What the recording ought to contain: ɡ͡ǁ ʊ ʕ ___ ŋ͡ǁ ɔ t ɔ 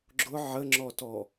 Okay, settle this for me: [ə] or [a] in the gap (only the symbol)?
ə